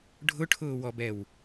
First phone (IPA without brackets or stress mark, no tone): ɖʱ